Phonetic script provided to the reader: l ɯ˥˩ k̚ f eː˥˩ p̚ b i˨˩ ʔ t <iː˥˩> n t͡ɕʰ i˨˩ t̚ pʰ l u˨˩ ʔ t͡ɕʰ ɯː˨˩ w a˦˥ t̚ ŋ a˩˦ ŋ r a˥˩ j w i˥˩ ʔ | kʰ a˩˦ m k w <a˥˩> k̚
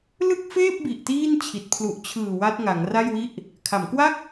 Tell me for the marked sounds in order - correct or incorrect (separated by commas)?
correct, correct